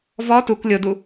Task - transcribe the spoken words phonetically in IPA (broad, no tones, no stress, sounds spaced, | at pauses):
v ɔ t u k lʲ o d u